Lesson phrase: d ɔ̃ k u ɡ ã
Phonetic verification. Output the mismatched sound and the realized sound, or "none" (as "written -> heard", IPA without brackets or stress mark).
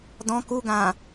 none